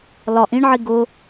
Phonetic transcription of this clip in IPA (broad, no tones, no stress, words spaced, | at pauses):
lɒʔ ĩɳʕi ɡʊ